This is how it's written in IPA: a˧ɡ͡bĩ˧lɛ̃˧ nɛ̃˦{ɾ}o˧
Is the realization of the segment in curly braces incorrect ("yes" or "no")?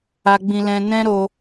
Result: no